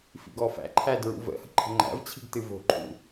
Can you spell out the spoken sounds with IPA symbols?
f ḭ ɡ ɔ f æ̰ ǃʰ æ d ɹ ṵ v ə̰ h ə̤ ǃʰ ə̤ ŋ͡ǃ æ̰ v t͡ɕʰ i̤ ɡ t ɨ v o̤ ǃʰ ṵ

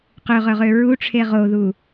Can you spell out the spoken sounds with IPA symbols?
q ø ʁ œ ʁ ø ɹ u ʈ͡ʂʰ e ʁ o ð u

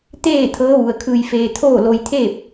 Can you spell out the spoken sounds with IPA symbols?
t̪ eː˥˨ t̪ʰ ɤː˧˥ ʋ u˩ ə̯ kʰ ɯː˧ j f eː˧ t̪ʰ oː˥˨ l o˧ j t̪ʰ eː˥˨ p̚

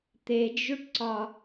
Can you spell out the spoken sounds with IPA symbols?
t̪ e d͡ʒ u ʈ ǀ ɒ

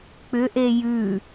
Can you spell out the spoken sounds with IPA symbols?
k͡p ʏ ʔ e j ʉ

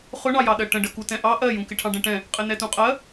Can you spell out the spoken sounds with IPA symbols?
χ ʊ ɳ ɑ j ɑ ɗ ɜ ʈ ə̃ ɖ ə k u t ɛ̃ ʔ ɑ ʔ ɜ j ũ k ɪ ʈʰ ɑ̃ ɖ ɛ̃ ʈ ɛ̃ | qʼ ɪ n ɛ t ũ qʼ ɜ

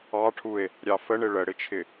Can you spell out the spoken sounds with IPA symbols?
ɑ ʈʰ u e̯ | ɾʲ ɑ f ə ɳ ɪ ɭ ə ɽ ɪ t͡ʃʰ ɪ

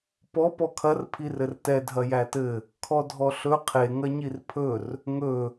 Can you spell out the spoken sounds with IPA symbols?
p ɔ p ɔ kʰ ɐ r pʰ i r ɘ r t ɛ dʱ ɐ j æ t ɘ | kʰ ɔ dʱ ɔ ɬ ɵ qʰ e ŋ ɐ ɲ i r pʰ ɵ r | ŋ ɵ

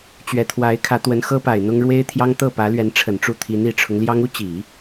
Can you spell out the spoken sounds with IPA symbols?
t͡ɕ ɥ ɛ˨˩ t̪ʰ w a˧˥ ɪ̯ kʰ ä˧˥ t̪ w ə˧˥ n x ɤ˥ p a˨˩ ɪ̯ n̪ ʊ˥ ŋ ɻ w e˥ ɪ̯ t̪ʰ j ɑ˥ ŋ t̪ ɤ˥˩ p ä˧˥ l ɥ ɛ˧˥ n ʈ͡ʂʰ ə˨˩ n ʈ͡ʂ u˥˩ t̪ʰ i˧˥ n i˨˩ ʈ͡ʂʰ ʊ˦ ŋ l j ɑ˥ ŋ u˥ t͡ɕ i˨˩˦

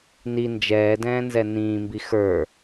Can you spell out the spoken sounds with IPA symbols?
n i n d͡ʒ ɛː d ɛ̃ː n z ɛ n ĩː m b i x ə˞

